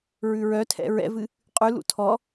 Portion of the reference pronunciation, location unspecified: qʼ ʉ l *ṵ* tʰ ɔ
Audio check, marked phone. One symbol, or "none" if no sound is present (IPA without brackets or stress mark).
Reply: ṵ